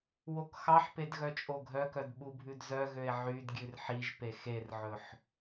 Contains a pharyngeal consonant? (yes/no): yes